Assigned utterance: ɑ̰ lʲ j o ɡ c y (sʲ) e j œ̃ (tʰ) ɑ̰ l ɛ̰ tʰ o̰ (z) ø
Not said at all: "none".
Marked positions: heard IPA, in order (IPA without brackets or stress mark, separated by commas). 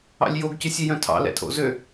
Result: sʲ, tʰ, z